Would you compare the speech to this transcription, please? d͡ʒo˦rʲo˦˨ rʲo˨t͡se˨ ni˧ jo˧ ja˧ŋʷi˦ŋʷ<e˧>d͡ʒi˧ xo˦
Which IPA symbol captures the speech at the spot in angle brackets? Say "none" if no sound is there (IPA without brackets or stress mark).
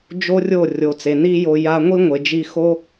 e˨